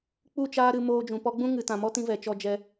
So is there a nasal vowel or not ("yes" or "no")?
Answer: yes